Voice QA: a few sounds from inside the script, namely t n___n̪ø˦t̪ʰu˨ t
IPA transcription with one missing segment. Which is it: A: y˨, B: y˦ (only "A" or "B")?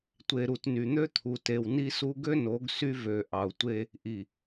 A